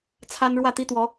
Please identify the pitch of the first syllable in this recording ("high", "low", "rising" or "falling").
high